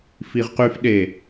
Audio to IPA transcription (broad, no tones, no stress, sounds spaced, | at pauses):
f i ʁ q y f ɗ e